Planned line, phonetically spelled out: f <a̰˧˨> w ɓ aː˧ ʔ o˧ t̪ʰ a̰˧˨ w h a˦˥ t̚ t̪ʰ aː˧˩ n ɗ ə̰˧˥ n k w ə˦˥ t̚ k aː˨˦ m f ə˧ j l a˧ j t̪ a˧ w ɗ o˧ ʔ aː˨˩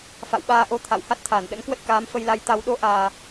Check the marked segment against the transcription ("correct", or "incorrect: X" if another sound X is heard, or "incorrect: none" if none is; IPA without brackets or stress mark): correct